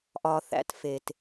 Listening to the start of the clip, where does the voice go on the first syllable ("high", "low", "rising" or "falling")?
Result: low